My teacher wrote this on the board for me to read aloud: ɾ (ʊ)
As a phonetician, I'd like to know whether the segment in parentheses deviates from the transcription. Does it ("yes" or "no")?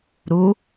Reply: yes